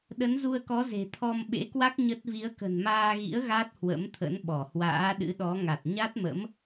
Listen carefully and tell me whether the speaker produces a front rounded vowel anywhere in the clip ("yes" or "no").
no